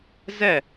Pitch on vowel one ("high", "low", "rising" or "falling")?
falling